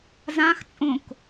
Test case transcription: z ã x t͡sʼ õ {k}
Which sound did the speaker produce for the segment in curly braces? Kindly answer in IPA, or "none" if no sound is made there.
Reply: k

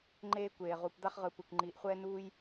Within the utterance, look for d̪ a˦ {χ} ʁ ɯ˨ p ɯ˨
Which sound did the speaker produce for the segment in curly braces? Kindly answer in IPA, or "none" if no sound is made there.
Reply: χ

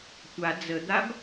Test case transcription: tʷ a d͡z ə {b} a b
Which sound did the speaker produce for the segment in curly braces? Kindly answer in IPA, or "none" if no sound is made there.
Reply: d̪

